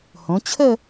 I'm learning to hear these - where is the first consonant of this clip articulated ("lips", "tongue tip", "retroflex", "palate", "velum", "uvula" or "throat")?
throat